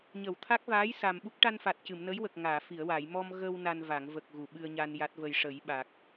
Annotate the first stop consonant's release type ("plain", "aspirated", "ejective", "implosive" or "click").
aspirated